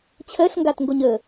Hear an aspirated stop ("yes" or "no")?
yes